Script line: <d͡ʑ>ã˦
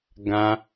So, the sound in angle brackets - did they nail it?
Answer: no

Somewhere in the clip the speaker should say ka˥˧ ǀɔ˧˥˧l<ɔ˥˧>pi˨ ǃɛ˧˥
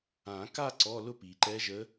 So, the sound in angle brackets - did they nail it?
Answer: no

